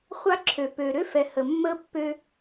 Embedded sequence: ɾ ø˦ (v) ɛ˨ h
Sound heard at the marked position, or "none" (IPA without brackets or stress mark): f